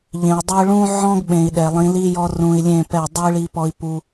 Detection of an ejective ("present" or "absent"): absent